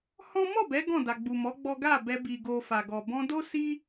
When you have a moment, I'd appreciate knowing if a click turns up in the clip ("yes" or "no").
no